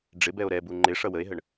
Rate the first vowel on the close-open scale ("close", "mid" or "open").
close